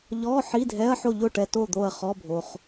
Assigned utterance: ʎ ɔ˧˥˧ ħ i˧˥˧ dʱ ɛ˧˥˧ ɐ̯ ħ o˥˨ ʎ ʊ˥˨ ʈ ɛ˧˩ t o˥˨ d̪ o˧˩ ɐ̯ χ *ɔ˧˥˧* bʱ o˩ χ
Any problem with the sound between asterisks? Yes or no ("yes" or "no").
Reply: no